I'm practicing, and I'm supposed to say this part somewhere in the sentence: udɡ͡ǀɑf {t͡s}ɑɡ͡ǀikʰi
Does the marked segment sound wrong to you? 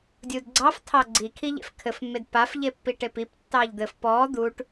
yes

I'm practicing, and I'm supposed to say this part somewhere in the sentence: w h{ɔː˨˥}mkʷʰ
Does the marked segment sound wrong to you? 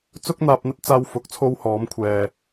no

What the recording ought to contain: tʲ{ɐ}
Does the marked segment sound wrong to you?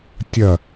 no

